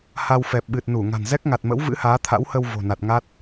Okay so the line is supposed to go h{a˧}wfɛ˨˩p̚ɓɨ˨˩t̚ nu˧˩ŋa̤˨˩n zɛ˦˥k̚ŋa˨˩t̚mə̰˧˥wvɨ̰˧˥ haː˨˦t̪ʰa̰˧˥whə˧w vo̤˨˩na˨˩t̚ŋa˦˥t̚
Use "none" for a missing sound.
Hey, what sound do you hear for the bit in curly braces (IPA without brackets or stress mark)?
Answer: a˧